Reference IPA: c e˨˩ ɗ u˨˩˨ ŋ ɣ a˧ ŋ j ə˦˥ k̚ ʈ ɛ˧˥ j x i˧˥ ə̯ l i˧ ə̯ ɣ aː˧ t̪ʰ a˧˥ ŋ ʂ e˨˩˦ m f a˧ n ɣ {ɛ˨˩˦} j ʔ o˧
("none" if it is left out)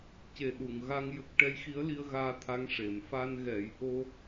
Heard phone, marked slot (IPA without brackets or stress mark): ɛ˨˩˦